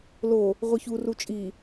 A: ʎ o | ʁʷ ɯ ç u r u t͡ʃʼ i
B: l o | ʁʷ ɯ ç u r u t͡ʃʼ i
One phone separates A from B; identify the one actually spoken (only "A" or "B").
B